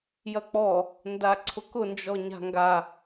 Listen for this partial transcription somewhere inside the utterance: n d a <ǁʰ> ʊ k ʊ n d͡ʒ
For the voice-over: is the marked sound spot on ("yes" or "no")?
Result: no